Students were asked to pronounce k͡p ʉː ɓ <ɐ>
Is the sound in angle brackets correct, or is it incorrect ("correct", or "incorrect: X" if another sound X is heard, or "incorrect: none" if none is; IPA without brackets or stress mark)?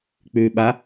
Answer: incorrect: a